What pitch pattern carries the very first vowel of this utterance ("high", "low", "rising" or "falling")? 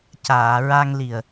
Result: low